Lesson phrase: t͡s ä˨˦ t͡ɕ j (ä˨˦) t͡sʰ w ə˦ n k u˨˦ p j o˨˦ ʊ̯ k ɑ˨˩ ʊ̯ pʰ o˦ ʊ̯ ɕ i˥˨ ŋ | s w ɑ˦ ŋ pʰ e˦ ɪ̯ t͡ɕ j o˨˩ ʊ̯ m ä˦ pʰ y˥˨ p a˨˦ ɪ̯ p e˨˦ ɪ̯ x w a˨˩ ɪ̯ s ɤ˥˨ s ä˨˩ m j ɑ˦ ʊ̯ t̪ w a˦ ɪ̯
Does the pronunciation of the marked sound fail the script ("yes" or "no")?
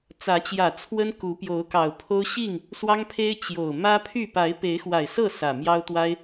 yes